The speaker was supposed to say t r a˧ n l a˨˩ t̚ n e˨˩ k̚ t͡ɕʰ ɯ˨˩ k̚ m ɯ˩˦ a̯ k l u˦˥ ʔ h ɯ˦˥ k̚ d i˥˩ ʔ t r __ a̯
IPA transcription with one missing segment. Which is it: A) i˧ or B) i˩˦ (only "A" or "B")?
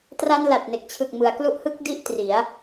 B